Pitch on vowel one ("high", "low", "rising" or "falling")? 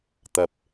low